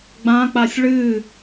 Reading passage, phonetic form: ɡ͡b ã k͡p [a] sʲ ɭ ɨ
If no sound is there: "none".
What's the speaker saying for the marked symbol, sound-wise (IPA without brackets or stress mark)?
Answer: a